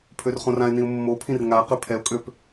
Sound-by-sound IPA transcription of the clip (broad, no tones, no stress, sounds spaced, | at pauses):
pʰ ø r χ õ r ã ɪ̯ n ĩ ʊ̯ mː o pʰ ĩ r ŋ a q ø pʰ ɛ ʊ̯ kʼ ø p